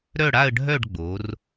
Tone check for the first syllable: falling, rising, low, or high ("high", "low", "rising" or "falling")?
falling